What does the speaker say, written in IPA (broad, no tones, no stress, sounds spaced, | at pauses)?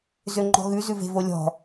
z ø ŋ͡ǃ ɔ̤ ɣ ʉ z ʉ v e̤ v o lʲ ɔ̤